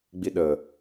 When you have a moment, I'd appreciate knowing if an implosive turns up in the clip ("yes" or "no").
yes